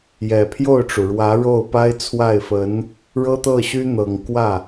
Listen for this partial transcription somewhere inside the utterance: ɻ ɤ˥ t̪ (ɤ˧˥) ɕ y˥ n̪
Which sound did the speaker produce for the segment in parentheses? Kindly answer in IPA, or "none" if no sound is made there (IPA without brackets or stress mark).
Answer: ɤ˥˩